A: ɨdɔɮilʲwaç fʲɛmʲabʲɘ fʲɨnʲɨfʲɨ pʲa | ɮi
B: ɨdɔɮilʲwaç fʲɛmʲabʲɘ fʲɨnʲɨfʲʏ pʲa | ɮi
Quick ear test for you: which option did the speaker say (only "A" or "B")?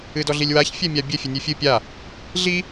A